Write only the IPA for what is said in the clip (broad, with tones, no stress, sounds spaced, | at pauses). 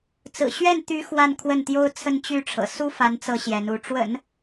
t͡s ɹ̩˨˩ ɕ ɥ ɛ˥˩ n t̪ y˧˥ x w a˥˧ n kʰ w ə˥˩ n t̪ j o˥ ʊ̯ t͡sʰ ə˥˧ n t͡ɕ y˥˩ ʈ͡ʂʰ ɤ̰˨˩ s u˥ f a˧˥ n t͡s ɤ˧˥ ɕ j ɛ˧˥ n u˧˥ ʈ͡ʂ w ə̰˨˩˦ n